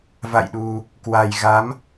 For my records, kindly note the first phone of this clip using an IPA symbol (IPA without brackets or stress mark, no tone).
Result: v